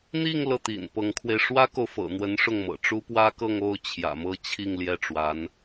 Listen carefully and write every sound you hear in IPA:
n̪ i˥˧ ŋ l ɤ˥˩ t̪ ḭ˨˩ n p ɤ˧˥ ŋ kʰ w e˧ ɪ̯ ʂ w ä˥ k o˨ ʊ̯ f ɤ̰˨˩ n̪ w ə˧˥ n ʂ ʊ˥˩ ŋ m ɤ̰˨˩ ʈ͡ʂ u˥ p w ä˥ k ɤ˥˧ ŋ o˥˩ ʊ̯ t͡ɕʰ j ä̰˨˩ m ɤ˥˧ t͡ɕʰ i˥˧ ŋ l j ɛ˥˩ ʈ͡ʂ w a˧˥ n

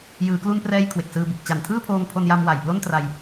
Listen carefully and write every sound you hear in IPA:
j ɯː˩˦ k l u˧ n p r ɛː˧ j kʰ w e˨˩ k̚ s ɯː˧ b ɯ˨˩ k̚ t͡ɕ a˨˩ n tʰ ɯː˥˩ pʰ oː˧ ŋ pʰ o˧ n j a˧ m w a˨˩ j p l o˥˩ n t r a˧ j

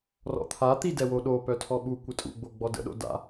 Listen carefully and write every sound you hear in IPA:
r ɔ̰ t̪ʰ a t̪ i d ɛ w o ɗ o p œ tʰ ɔ ɓ u kʷ ə tʼ ṵ ɡ͡b o ɡ͡b ɔ d ə̰ ɗ o̰ d a̰

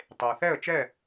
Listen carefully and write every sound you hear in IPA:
tˤ e˩ ʊ̯ θ ɛ˥˩ ə̯ t͡ʃ ɛ˥˩

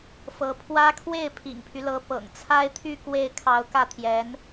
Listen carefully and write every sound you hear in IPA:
f ɤ˧˥ pʰ w ä˥ kʰ w e˥˩ ɪ̯ pʰ ḭ˨˩ ŋ pʰ y˦ l ɤ˧˥ p ɤ̰˨˩ ŋ t͡sʰ a˥ ɪ̯ t̪ʰ y˥˧ k w e˥˩ ɪ̯ kʰ ɑ˧˥ ʊ̯ k ä˥˩ t̪ʰ j ɛ˧˥ n

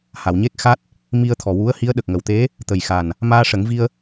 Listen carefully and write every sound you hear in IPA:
h a˨˩˨ w ɲ e˦˥ k̚ x a˦˥ t̚ | m i˧ ə̯ t̪ʰ ɔ˨˩ w u˧˥ ə̯ h i˧˥ ə̯ ɗ ə˨˩ k̚ ŋ ə˨˩ w t̪ e˧˥ | t̪ ə˨˩ j x a˨˩ n | m aː˧ ʂ ə˨˩˦ ŋ v i˧ ə̯

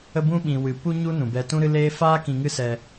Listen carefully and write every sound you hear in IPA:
ə˧ b ũ˧ ɓ ĩ˨ w ɨ˨ p u˦ ɲ u˦ n ũ˨ b ɛ˧ t ũ˦ ɾ ɨ˦ l eː˦ f aː˦ k ĩ˧ ŋ ɨ˦ s ɛ˧

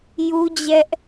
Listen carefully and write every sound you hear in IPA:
j u˦ d͡ʑ ɛ˦ ʔ

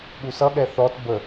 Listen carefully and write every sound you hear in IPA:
ɠ u s ʌ ɠ ɛ θ ɔ t b ə

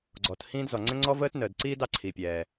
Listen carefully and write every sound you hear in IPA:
ɡ͡ǀ ɔ˩ t h ĩː˦ d z ɔ˩ ŋ͡ǀ ə̃˦ ŋ͡ǀ ɔ˦ v əː˦ t n əː˩ d ǀ iː˦ d ɑ˦ ǀʰ i˩ pʲ ɛː˩

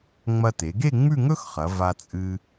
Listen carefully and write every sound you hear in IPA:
ŋ͡m ɐ˧ t e˩˧ ɡ e˥˧ ŋ͡m ʉ˥˧ ŋ ɵ˥ x χ ɐ˩˧ v a˧ t͡sʼ ɨ˧

